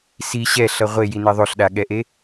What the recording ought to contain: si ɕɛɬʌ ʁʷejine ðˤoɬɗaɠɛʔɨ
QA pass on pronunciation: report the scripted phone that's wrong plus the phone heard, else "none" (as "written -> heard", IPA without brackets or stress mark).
ɨ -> e